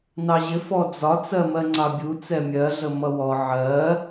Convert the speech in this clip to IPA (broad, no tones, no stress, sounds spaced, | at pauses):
n ɑ ʑ ɪ f ɔ d͡z ɒ t͡s ɜ m ɜ ŋ͡ǀ ɑ bʲ u t͡s ɛ mʲ ɜ ɮ ə m ʌ w ɔ ʕ ɜ